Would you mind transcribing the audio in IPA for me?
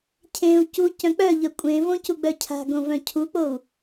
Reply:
cʰ ẽ u̯ c u c œ̃ k͡p œ ʎ œ kʷʼ ẽ v õ c u ɡ͡b œ cʰ a̤ ɡ õ v œ̃ cʰ u k͡p o u̯

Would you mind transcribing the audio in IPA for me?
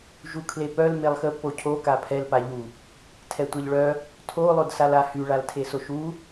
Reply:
ʒ u kʰ l e p œ l m e lˠ x ə p o cʰ o k a pʰ ɛ l p a ʎ u | tʰ ɛ tʷ e ʎ ɭ œ | tʰ o lˠ o d s a l a h y ɭ a l tʰ e s o ʃ u

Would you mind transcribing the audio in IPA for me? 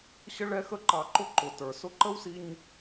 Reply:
ɕ ə˦ ɭ ɛ˦ x ə˦ ǃ ɑ˧ ǃ ʊ˦ ǃ ʊ˨ t ə˞˨ s ʊ˦ ǃ ə˦ w s i˧ ɲ

